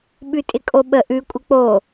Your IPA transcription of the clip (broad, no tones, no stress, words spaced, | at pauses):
ɓʉtʼɪkʼoɓə ʔʉ kʷʼɪk͡po